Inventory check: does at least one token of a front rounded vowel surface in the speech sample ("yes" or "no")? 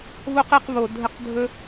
no